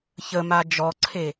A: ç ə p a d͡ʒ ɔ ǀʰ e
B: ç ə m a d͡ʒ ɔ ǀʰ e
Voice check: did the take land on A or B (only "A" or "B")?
B